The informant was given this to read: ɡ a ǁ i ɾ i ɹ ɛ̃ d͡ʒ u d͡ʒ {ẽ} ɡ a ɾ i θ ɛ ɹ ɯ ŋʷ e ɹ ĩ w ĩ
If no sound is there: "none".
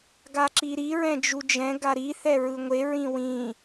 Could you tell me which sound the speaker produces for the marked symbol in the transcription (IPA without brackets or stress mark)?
ɛ̃